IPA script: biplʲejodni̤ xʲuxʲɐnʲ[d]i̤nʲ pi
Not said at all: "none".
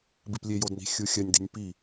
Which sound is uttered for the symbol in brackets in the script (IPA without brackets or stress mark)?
d